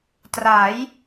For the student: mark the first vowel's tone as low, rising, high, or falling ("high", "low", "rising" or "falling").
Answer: rising